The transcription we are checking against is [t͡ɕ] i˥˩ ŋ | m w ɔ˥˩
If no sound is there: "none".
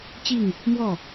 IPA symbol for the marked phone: t͡ɕ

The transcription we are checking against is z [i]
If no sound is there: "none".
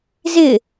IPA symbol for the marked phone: ɪ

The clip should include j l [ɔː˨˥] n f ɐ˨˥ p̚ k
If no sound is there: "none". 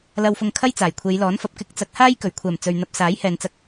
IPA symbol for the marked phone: ɔː˨˥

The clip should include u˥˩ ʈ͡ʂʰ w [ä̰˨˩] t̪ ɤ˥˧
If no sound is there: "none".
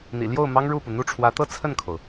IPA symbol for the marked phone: ä˧˥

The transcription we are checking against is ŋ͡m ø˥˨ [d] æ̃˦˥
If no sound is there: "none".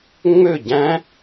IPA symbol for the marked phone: ɟ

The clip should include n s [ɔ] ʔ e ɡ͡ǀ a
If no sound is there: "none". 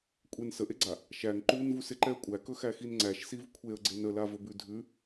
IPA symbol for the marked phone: ə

